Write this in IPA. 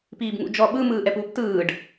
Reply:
piːbŋṵd͡ʒɔ ɓɯ mɯːʔɛpuːptɯːɖ

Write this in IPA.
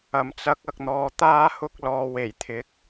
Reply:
ɐ˨˩mt͡sɐ˨˥k̚ɐ˨k̚n̪ɔː˨ t̪aː˥hʊ˥k̚lɔː˧ we˨˩jt̪ʰɪ˨˥k̚

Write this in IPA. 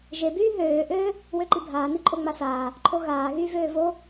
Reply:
ʒebyː ɦøːʔøː | wøǃibʱaːni ǃʼoŋ͡masaː | ǃʰoɣaː ɣyːvøːvo

